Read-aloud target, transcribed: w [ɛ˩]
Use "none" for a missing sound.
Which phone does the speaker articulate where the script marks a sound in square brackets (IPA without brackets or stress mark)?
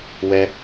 ɛ˩